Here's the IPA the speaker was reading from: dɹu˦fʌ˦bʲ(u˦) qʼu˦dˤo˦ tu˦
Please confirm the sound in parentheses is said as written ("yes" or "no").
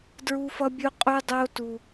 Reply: yes